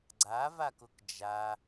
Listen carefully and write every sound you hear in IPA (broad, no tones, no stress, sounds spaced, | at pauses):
ɡ͡ǀ a v a k ʊ k d͡ʒ a